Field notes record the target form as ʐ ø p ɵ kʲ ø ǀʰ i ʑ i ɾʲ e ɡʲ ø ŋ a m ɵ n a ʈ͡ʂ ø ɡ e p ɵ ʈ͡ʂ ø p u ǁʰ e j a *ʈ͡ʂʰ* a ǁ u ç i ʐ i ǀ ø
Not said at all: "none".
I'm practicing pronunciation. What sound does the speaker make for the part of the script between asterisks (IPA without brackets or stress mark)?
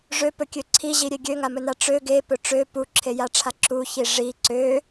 ʈ͡ʂʰ